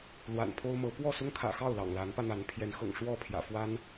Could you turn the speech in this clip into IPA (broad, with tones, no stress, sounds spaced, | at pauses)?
l w a̰˨˩ n pʰ o˦ ʊ̯ m ɤ˨˦ p w ɔ˥˨ s ʊ˦ ŋ kʰ ä̰˨˩ x ɑ˥˨ ʊ̯ l ɑ̰˨˩ ŋ l a˨˦ n p ä˧ n̪ a˨˦ n pʰ j ɛ˨˦ n x ɤ̰˨˩ ŋ ʂ w ɔ˥˨ pʰ j ä̰˨˩ f w a˦ n